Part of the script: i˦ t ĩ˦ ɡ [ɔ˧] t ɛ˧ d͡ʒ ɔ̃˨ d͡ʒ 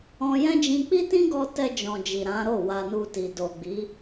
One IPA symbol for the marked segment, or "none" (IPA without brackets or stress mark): ɔ˧